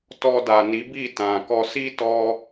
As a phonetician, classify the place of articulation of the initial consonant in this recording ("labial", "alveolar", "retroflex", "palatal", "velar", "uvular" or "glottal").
alveolar